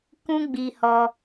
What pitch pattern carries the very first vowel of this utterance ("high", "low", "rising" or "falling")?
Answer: high